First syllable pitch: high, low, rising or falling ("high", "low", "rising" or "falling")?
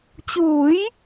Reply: rising